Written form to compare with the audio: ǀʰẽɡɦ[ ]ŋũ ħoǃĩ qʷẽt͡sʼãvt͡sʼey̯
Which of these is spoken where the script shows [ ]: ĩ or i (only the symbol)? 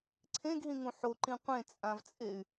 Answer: ĩ